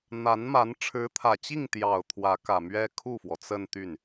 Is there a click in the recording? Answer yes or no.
no